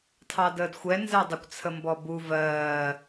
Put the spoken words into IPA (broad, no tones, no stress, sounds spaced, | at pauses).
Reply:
tʰ ɑ d əː d xʷ ɛ n z ɛ dˤ ə kʷ t͡sʰ ə m b ɔ b u v ɜː